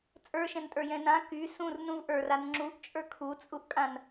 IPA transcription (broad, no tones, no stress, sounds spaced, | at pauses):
t͡sʼ ə˞ ʃ ɛ̃ n tʼ ə˞ j ɛ̃ n ã k y s ũ r n ũ v ʔ ə˞ r a n ŋ͡ǁ u ʔ t͡ʃʼ ə˞ kʰ u t͡sʼ u ʔ kʼ ã n